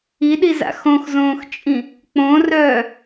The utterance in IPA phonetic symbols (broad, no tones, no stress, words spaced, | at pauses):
iɗiza̰ xõxzõːxt͡ʃʼĩ | k͡põrœː